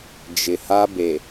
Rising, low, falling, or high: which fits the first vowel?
low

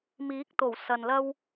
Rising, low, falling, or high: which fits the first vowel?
rising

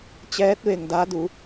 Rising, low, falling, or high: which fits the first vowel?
rising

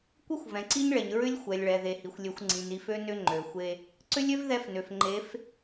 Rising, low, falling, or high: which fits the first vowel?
high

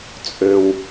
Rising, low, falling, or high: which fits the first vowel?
low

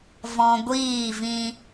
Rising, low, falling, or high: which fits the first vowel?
high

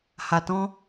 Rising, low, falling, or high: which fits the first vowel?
low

